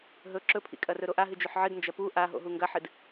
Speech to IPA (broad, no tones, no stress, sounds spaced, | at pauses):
ɦ ɵ ǁ ɵ pʰ ḭ kʼ ɐ r ɵ ɾ o ʔ a ɦ ɨ d͡ʒ ɵ ħ ʕ ɨ d n d͡ʒ ɐ p u ʔ a ɦ o̰ ɦ u ŋ ɡ ɐ ħ ɨ d